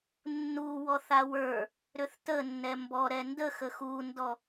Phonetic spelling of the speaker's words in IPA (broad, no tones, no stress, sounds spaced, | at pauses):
nː u w ɔ θ a w ə˞ | ɾ ʏ θ t ə nː ɛ m b ɔ ɾ ɛ n d ə x ə x u n d ɔ